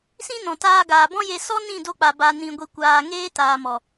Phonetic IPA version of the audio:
sĩ˦nɔ̃˨taː˧ ɡaː˨bɔ̃˦je˧ sɔ˦nĩ˦˨do˧k͡pa˨ ba˧nĩ˧ɡʷi˧kʷaː˧ ŋeː˦taː˨mɔ˨

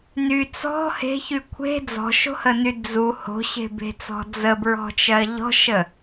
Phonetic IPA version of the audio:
ny t͡sɔ̤ he̤çy kʷʰe̤ d͡zɔ̤ʃo̤həny d͡zu ho̤ɕe̤be̤t͡sɔ̤ d͡zəbɹɔ̤t͡ʃɜ ʎɔ̤ʃə

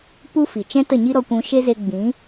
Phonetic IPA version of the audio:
pu˦fi˨ t͡ʃɛ̃˦tə˦˨ɲi˦ ɾɔ˧kʷũ˧ ʃe˦ze˧ ɡ͡bĩ˨˦

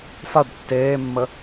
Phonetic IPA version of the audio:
faɖ tːeːmːə

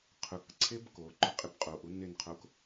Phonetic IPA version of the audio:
qʰʊk ǀʰebkoǃʊ qʼɪbqʼoʔu nɪnqʰok

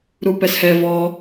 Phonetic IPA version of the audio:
ɾupɛshɛ vɔ

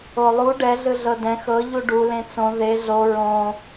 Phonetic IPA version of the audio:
olˠu ɖɛ ɮɯɮɤdɛ̃ xɤ ʎuɖu lẽt͡sõ ðe ɮo ɹõ

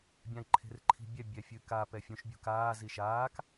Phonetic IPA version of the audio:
bʲãi̯ǃʰe̤rǃʰi̤bʲɛ bʲɛfʲɨka pɛfʲũʃ bʲṳkaː ziʃaːk

